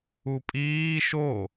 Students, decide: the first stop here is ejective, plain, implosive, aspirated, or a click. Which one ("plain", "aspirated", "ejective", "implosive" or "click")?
ejective